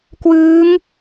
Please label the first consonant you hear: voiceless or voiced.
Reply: voiceless